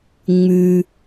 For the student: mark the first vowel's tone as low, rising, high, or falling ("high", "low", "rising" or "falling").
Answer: low